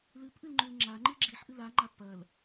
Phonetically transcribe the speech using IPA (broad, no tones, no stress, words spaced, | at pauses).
lɨpʔɨlŋ͡ǃʉl ŋ͡ǁaŋ͡ǃɨ ɡ͡ǁiħʔɨl aŋ͡ǃa pɐl